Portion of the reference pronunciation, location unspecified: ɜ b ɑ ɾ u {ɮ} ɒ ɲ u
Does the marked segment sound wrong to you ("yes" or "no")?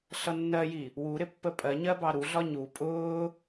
no